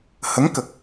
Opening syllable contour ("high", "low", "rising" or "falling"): rising